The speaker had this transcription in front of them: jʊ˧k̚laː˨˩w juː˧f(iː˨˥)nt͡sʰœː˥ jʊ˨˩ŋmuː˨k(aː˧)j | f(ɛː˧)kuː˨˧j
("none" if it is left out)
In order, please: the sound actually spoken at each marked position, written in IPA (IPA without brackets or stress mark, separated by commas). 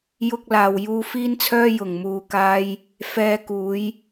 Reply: iː˥, aː˧, ɛː˧